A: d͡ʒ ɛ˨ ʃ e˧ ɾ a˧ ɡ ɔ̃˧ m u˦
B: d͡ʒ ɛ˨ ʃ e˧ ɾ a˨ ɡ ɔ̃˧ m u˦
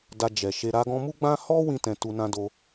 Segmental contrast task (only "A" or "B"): A